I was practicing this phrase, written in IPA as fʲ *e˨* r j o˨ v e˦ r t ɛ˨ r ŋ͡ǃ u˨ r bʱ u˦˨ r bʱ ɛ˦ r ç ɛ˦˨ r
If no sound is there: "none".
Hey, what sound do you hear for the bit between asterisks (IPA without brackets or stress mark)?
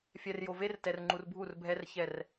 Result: ɛ˨